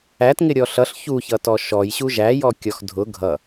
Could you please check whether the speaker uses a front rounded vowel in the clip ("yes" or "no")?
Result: no